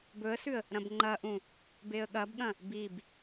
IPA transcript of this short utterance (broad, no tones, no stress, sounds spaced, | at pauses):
b ɵ ə̯ s ʉ ə̯ | ɾ ɐ̃ b ŋ͡ǃ ɐ ʔ ũ | b e ə̯ ɠ ɐ b ɠ ɐ̃ | b i b